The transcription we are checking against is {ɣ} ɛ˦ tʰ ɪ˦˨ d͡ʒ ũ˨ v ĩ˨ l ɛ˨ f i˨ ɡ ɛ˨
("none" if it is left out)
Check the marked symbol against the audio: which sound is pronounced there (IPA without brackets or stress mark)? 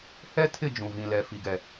h